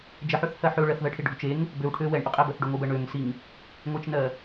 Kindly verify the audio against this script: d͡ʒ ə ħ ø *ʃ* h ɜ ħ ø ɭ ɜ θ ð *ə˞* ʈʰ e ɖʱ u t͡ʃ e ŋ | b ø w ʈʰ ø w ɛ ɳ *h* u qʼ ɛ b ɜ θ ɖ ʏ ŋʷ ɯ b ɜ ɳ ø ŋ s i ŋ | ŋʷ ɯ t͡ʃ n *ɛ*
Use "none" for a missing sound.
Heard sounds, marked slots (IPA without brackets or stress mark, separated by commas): θ, ɜ, ʔ, ɜ